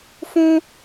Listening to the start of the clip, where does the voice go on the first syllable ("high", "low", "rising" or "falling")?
high